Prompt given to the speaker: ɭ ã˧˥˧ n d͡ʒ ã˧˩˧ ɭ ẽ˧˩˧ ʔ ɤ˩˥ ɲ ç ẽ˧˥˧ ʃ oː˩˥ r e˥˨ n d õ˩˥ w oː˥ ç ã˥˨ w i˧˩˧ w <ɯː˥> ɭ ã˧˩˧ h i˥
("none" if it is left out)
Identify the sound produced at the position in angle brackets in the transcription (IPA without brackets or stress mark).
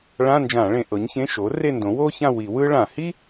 ɯː˥